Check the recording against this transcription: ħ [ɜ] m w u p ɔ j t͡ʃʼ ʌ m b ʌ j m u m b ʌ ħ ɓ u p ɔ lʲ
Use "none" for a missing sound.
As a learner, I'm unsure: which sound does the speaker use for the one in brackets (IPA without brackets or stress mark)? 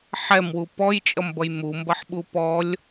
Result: ɛ